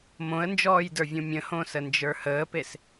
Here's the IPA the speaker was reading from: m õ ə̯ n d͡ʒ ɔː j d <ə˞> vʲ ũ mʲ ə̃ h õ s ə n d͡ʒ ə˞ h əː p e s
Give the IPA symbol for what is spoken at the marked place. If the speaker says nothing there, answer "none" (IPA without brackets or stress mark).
ə˞